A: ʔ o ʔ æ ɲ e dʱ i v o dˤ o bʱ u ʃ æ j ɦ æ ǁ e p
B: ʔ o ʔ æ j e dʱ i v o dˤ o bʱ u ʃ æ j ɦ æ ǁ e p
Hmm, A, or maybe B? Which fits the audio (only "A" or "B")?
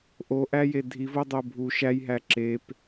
B